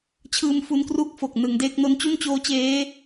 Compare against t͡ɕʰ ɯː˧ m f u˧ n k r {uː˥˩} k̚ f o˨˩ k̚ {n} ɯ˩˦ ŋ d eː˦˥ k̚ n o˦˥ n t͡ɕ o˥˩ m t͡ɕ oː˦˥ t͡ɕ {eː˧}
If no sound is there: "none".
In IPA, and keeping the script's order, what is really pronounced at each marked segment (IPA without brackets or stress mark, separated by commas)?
uː˥˩, n, eː˦˥